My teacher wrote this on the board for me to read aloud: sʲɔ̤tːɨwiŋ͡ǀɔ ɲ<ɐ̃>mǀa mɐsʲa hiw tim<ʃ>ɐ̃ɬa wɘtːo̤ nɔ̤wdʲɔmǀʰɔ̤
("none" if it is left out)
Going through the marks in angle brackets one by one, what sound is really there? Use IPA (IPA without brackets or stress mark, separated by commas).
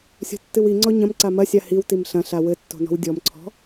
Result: ɐ̃, ɬ